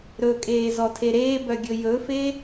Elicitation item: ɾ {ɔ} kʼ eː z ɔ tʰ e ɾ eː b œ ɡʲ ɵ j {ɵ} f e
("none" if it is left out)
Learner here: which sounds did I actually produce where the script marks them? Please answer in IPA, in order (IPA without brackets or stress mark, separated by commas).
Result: ɵ, ɵ